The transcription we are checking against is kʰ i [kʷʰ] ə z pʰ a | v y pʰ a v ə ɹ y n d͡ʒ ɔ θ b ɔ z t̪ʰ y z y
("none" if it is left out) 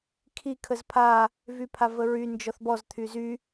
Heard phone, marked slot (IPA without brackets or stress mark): kʰ